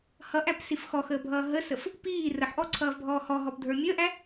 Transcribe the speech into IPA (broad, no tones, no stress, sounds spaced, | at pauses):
h ʌ ʔ æ p s i f x ɔ x əː bʱ ʌː ɦ ə s ə f | p iː r ə ħ ʔ ɔ ǀʰ ʌː v bʱ ɔː h ɔ ɦ ɔ p dʱ ə˞ mʲ əː ʔ æ